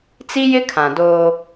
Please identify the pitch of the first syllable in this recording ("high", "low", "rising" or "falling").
high